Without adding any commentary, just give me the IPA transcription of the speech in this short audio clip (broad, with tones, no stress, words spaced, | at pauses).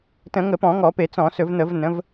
tə̃˧˩˧ŋə˧˩˧pɔ̃˧˩˧ ŋɔ˧˩˧pe˧˩˧t͡sɔ̃˧˩˧ sɵ˧˩˧vn̪ə˧˩˧v nə̃˩˧v